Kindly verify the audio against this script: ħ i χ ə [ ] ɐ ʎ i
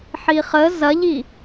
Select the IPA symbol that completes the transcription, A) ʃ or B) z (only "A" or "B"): B